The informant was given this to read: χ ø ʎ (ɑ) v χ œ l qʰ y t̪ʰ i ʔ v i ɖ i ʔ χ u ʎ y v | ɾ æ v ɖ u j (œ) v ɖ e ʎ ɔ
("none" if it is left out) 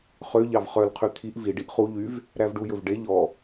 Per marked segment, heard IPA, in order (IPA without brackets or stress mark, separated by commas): ɑ, ɵ